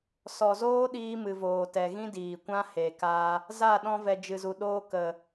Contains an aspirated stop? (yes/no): no